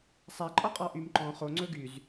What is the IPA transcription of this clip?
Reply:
sˤ æ ǃʼ ɔ qʼ ɑ ʔ y m ǃ ɔ̃ χ o ŋ͡ǀ ɵ ɡ y z

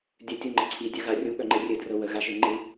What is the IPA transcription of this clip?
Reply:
dʲ œ tʲ u ŋ͡ǃ ə ǀʰ i dʲ œ ɣ a rʲ u ɠ œ ŋ͡ǃ ɘ rʲ ɘ d r ɤ w ə ɣ a ʒ ɘ ŋ͡ǃ ɯ

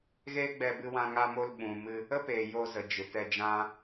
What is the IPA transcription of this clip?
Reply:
ɣ eː˦ ɡ͡b ɛ˧ b ɨ˧ w ã˧ ŋ a˧ m o˧ l ɓ ũ˨ m ɨ˧ | ə˦ p eː˨ j o˧ z ə˨ d͡ʒ ɨ˨ t ɛ˧ d͡ʒ ã˦

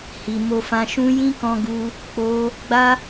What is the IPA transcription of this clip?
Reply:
h i˧ m o˧ f ã˧ ʃ ũ˦ j ĩ˦ k ɔ̃˧ ɡ u˧ | k͡p o˦ | ɡ͡b a˦

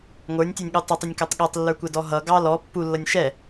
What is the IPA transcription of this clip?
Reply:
ŋʷ ə˞ nʲ tʲ ɛ nʲ ɠ u tˤ ʊ tˤ ʊ nʲ k æ tˤ ɠ ɛ tˤ lː ə˞ kʷ ɛ d ɔ ɦ ʌ ɡ ɑ l ɔ pː u lː ʌ nʲ ʃ ɛ

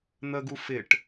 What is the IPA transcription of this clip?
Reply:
n̪ ə ɡ u f ɪ ʈ

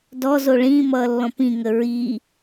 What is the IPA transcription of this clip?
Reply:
d ɔ z o ɭ ĩ m ʌː lː ɔ̃ p ĩ ŋ ə ɹ i

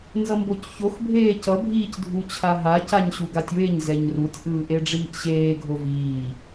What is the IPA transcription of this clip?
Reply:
n z ʌ m b o c ç o x bʱ eː c ʌ bʱ iː c dʱ u t͡ɕʰ a ɦ a c a ɲ ɕ u ɡ a tʲ w e ɲ z ɛ ɲ r u tʲ ʔ ɯː ʔ e ɖ͡ʐ iː ʔ ɕ eː ɡʱ o v iː

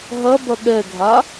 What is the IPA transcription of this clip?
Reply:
ɦ ɐ b ɐ ɠ ɛ ɡʱ a

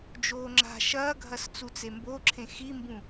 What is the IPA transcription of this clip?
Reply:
d͡ʒ oː ŋ͡ǁ a̤ ʃ ɐː ɡʱ ɐ s t͡s u t͡s e m b o ǁʰ ẽ x i m b ũ

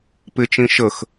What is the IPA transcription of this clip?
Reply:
p ɪ t͡ʃ ĩ ʃ ə x

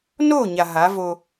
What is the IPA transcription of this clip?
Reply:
n o˦˨ ɲ a˨ ɦ a˨˦ v o˦

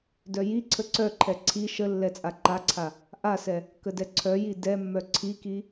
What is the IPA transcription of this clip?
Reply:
d œ j i ǀʰ ə ǀ œ ǃʰ ɛ ǀʰ i ʃ ə lː ɛ t͡sʼ a ǃ a ǀʰ a | ʔ a s ɛ | k ə d ɛ ǀʰ œ j i d ɛ mː œ ǀʰ i k i

